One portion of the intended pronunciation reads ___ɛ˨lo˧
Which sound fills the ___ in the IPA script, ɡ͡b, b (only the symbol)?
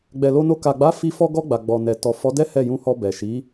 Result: ɡ͡b